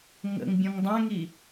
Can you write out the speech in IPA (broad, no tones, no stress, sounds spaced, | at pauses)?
ŋ ə̰ ŋ bʲ ɔ̃ ŋ dˤ æ̃ ŋ i